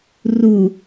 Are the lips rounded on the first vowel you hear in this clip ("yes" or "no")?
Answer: yes